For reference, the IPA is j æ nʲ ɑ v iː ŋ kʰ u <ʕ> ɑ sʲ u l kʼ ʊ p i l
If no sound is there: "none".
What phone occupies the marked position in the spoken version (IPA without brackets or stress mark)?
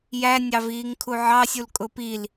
ʕ